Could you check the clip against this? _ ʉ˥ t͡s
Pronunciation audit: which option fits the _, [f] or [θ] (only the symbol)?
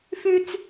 f